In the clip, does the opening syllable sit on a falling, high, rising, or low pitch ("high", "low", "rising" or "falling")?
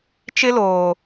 high